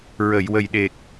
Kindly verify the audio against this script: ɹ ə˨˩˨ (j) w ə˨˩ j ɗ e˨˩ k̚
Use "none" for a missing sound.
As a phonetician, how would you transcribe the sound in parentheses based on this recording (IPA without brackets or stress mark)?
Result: j